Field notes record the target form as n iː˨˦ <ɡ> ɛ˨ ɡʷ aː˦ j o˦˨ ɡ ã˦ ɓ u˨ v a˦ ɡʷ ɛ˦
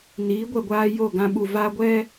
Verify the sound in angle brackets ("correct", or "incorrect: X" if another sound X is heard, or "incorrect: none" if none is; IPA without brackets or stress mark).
incorrect: ɡʷ